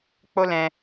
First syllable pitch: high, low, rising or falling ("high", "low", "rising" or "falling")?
high